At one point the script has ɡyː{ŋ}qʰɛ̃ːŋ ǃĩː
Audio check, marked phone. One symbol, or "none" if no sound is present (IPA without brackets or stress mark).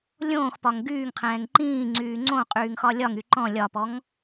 ŋ